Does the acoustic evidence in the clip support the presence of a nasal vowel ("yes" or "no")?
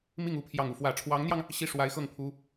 no